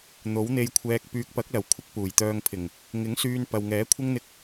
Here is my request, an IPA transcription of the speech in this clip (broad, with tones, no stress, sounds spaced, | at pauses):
n̪ o˨˥ w n̪ e˧ j kʷʰ ɛː˧ k̚ p yː˨ k̚ p ɐ˨˥ k̚ l ɐ˨˩ w kʷʰ ɪ˥ k̚ p uː˨˩ j t̪ œː˧ ŋ pʰ ɪ˨˩ ŋ | ŋ ɪ˨˥ ŋ s yː˧ n p ɐ˨ w ŋ ɛː˨˥ kʷʰ ɪ˥ ŋ n̪ ɪ˧ k̚